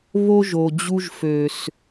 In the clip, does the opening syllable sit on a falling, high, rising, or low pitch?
high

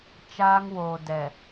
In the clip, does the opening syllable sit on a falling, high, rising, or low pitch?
high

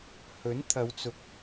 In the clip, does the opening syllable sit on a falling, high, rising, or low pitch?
rising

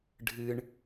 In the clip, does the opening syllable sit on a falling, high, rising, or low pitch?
high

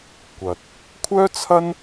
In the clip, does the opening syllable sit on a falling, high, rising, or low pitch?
low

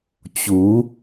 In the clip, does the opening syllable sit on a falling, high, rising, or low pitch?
rising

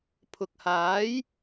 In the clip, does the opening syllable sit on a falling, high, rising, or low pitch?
low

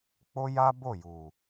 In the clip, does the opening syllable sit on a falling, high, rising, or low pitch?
high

